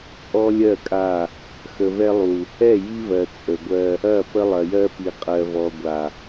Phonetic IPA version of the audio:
t͡sʼɔ˦lʲɜ˦˨kʼa˦˨ | xə˨vɛ˦lˠu˨ | ɛ˦˨ji˦vɜ˨ t͡sʼə˨ɡʷɜ˦ | ɐ˦˨ pə˦lˠɐ˨jɜ˦pi˨ qʼɜ˨vɔ˨ɡʷa˨

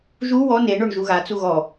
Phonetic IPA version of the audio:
ʒu wɔ neɳoɳ ʒuɣat͡su ɣɔ

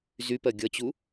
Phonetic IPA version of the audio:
zypɜ ɡʲʌt͡ɕu

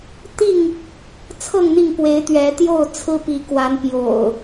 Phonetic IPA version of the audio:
t̪i˥˨ŋ | t͡sʰɤ˥˨ŋn̪i˥˨ŋpwe˨˦ɪ̯ t̪ɥɛ˨˦ t̪jo˥˨ʊ̯t͡sʰɹ̩˦pi˨˦kwa˨˦n pjo̰˨˩ʊ̯

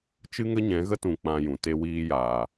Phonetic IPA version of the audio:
t͡ʃɨ˦ŋə˦ɲɛ̃˨˦ɣə˦ tũ˧k͡pã˧jũ˨ te˧wiː˧jaː˨

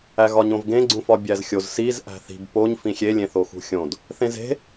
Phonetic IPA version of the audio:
æɣɒɲõvɡẽ ɡ͡ǀũfɒbʲæzxʲoz siz ʔæ̤θi̤b poɲ fĩxʲe lʲẽθoxṳxʲõd | θẽze̤

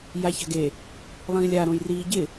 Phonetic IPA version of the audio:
jaça̤ɡe | lˠĩːlʲa ɾõjriːɟɪ

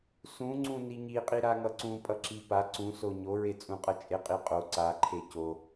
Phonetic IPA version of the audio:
sũŋ͡ǀũ niɲiqʼi ɾaŋʌǀũ pʼʌǁipa ǀũso ɲoɹet͡sʼũqʼʌ t͡ʃʼeqʼiqʼo ǀaǃʰe co

